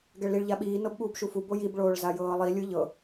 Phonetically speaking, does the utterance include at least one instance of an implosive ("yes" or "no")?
yes